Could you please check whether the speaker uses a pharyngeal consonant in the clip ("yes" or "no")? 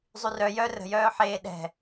yes